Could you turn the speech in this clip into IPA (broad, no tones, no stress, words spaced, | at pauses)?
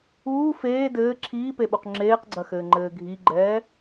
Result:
uː feː dɘː ǁʰiːpeɓuq ŋ͡ǁeːqɡ͡ǀɐxɘːŋ͡ǃɘː ɡʱiɡ͡ǃɛː